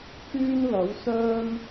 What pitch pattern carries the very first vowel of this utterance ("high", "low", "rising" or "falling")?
high